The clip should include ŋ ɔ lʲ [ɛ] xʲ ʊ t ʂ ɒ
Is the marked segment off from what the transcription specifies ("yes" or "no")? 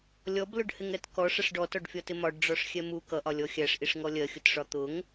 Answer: yes